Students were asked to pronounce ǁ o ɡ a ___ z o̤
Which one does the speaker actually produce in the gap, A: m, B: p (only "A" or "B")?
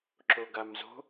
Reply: A